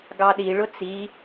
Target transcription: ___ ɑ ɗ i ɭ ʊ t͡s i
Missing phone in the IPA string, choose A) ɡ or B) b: A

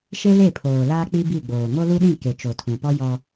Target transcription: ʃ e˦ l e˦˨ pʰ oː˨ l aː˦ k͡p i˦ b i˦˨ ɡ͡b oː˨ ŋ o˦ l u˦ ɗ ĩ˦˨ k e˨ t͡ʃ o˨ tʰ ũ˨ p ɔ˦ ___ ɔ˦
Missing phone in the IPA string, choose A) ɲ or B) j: B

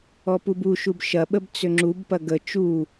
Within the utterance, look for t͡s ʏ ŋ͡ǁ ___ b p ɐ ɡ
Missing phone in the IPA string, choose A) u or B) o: A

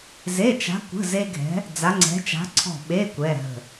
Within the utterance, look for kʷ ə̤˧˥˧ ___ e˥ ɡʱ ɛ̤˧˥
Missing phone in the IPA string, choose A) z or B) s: A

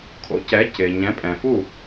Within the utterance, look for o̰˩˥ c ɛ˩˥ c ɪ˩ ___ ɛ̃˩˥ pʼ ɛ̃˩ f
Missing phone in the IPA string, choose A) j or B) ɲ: B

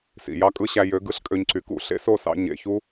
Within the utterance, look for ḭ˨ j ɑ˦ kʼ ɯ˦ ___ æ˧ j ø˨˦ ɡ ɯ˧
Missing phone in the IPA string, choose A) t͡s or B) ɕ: B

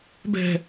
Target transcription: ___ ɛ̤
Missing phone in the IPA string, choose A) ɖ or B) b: B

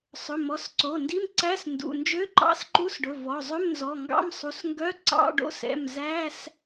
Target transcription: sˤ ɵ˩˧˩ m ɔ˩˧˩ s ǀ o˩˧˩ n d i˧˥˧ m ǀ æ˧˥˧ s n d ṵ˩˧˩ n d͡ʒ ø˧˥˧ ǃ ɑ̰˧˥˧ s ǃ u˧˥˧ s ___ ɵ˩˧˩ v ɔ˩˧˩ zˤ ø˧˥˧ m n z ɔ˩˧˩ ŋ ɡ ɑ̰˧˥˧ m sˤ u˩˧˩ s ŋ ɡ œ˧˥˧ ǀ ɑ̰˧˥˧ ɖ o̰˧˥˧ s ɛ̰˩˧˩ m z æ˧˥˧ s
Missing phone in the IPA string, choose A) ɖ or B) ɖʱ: A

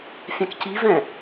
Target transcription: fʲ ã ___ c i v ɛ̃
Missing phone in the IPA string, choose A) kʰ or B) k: B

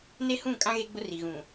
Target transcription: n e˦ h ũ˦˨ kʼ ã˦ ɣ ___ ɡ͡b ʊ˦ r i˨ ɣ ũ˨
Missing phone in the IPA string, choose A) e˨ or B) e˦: B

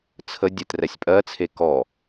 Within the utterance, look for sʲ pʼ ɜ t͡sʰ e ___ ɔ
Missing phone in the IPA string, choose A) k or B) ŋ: A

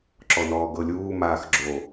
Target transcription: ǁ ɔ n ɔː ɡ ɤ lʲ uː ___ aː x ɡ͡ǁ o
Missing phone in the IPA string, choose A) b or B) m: B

